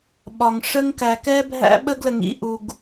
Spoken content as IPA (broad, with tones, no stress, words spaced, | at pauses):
ɓɒ˨ŋʂə˦ŋ kæ˨kɛ˦bʱæ̰˦ ɓə˦ɡlə˨ŋ ḭ˦ʔu˨ɡ